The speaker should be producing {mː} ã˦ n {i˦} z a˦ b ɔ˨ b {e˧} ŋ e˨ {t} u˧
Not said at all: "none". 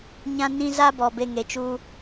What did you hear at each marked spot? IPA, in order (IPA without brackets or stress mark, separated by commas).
ɲ, ĩ˦, e˧, t͡ʃ